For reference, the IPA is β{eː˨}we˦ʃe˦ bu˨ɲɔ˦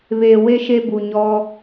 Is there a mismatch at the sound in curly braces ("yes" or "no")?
no